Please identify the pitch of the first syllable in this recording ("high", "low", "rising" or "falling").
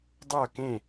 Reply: falling